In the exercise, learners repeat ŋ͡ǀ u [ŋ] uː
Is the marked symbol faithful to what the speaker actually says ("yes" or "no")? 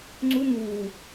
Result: yes